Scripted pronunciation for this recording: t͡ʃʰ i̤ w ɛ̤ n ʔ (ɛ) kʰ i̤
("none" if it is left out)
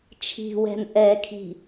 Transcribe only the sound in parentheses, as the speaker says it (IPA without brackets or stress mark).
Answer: ɛ